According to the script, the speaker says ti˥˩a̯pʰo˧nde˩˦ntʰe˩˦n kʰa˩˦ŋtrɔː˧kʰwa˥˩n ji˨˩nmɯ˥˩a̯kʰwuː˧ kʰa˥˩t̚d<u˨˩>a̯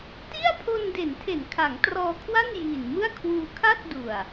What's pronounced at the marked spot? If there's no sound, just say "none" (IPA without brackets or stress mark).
u˨˩